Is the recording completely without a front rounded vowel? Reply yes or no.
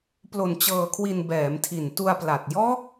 yes